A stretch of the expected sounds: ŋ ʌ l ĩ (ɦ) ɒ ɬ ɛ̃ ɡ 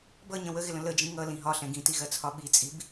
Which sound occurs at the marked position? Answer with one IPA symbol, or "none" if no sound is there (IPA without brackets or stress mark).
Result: ɦ